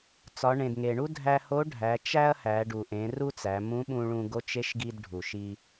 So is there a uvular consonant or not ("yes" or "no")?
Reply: no